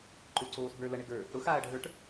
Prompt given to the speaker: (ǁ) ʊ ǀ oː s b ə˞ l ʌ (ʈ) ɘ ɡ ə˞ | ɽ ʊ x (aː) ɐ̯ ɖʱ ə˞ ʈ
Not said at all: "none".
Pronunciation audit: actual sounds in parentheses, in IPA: ǃ, ɳ, aː

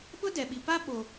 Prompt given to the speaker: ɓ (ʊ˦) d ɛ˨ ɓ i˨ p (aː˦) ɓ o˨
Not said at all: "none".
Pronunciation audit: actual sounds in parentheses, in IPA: ʊ˦, a˦

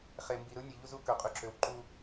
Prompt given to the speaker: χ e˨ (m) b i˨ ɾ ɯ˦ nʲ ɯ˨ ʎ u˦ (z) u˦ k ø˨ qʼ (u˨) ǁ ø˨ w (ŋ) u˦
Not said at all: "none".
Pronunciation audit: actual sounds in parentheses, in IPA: m, z, y˨, ǃ

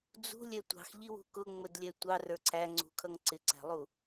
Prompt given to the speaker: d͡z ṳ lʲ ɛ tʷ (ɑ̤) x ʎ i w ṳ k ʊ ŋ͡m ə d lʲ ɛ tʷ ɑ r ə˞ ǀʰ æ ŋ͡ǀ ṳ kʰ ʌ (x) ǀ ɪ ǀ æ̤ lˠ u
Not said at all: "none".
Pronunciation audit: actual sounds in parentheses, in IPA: ɑ̤, ŋ

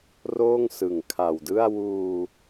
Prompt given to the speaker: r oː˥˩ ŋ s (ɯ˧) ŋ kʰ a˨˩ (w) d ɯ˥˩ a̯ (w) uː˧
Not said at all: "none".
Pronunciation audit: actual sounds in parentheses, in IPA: ɯ˨˩, w, w

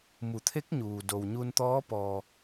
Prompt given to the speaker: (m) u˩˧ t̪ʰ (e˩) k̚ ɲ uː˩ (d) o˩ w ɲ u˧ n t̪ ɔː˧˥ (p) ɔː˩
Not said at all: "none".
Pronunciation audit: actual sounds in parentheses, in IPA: m, e˧˥, d, p

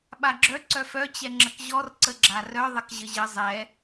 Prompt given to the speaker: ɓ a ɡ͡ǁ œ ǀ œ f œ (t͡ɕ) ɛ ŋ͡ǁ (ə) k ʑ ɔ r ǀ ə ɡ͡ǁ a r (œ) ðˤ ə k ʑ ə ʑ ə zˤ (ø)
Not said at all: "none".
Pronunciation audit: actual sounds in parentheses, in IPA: t͡ɕ, ə, œ, ɛ

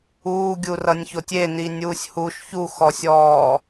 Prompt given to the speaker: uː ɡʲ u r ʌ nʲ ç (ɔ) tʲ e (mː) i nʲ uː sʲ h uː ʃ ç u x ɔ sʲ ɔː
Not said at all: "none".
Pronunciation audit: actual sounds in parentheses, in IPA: o, n

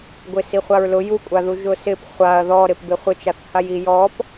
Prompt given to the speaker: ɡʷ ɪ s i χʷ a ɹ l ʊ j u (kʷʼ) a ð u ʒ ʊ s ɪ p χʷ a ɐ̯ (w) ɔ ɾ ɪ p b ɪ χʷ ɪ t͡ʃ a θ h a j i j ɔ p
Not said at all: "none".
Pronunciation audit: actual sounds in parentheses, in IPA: kʷʼ, ð

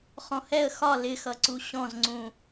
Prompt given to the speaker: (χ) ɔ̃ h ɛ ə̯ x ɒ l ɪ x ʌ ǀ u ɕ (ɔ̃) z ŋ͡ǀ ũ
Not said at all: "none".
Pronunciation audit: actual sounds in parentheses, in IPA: χ, ɔ̃

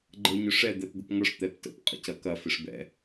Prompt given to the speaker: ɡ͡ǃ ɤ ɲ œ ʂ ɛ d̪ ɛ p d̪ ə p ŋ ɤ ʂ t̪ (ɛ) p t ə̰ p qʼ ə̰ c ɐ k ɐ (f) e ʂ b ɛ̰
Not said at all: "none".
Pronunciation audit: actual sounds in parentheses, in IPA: ɛ, f

